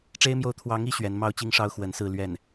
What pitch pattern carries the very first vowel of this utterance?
high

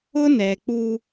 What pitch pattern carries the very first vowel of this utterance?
high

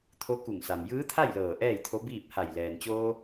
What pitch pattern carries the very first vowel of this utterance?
rising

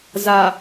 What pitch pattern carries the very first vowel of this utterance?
low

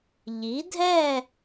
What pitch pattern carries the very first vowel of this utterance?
rising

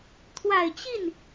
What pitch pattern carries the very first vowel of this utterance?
low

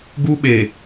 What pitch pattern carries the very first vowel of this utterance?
high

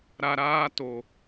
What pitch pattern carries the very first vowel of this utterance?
low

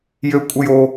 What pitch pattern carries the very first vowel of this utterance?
high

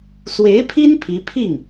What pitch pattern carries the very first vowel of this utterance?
rising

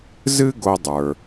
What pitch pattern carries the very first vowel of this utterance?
high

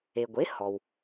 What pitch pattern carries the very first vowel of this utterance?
low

